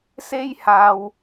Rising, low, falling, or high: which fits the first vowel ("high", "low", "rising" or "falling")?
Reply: high